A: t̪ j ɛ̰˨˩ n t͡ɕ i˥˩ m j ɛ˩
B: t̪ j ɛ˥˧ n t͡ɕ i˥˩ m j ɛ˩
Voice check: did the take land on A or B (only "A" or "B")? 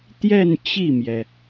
B